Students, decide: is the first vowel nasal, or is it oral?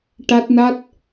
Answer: oral